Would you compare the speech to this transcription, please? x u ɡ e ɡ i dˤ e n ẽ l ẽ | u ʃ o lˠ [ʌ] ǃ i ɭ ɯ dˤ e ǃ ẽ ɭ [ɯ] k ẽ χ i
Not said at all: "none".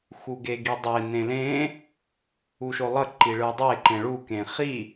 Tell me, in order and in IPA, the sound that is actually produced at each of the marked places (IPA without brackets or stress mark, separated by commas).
ʌ, u